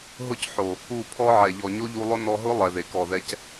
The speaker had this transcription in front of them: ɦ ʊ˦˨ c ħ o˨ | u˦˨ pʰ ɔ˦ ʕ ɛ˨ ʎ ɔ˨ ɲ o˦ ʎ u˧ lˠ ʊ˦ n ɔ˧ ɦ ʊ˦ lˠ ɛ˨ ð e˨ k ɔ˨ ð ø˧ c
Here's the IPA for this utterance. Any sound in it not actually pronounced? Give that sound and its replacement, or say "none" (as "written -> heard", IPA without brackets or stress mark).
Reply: ø˧ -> ɛ˧